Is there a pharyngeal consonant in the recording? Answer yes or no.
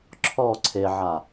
yes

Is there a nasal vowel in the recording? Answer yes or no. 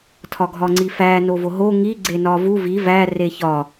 no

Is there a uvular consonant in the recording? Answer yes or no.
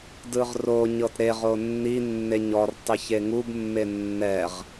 yes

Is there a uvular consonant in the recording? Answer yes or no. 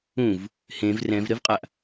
yes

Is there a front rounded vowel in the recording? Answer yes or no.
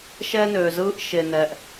yes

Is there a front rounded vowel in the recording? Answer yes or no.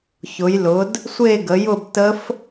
no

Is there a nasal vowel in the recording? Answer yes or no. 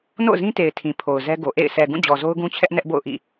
yes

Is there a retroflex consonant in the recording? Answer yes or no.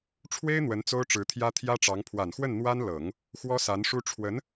yes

